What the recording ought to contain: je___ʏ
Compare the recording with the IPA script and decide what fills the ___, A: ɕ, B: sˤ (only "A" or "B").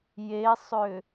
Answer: B